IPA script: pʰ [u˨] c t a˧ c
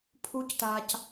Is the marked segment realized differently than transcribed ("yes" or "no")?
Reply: yes